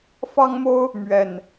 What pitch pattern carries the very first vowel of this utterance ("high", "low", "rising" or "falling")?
high